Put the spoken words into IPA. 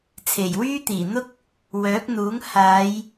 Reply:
t͡sʰ e˨˩ j w yː˥ t̪ iː˨˩ n̪ ʊ˥ k̚ | w œː˨˥ k̚ n̪ uː˨˥ ŋ h aː˨˧ j

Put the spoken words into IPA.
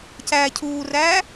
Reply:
c æː cʰ uː r æː

